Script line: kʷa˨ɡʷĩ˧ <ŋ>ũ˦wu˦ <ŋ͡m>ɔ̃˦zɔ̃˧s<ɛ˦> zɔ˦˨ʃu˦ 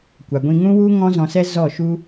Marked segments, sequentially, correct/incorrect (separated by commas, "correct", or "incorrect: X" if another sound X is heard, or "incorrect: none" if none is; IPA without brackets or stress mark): correct, incorrect: ŋ, correct